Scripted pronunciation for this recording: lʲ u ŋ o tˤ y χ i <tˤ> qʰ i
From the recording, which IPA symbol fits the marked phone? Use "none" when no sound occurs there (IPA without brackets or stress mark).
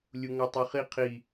none